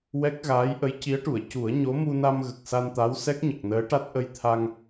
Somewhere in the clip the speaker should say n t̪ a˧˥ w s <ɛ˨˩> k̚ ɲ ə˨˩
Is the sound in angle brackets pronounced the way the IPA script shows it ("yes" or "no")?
no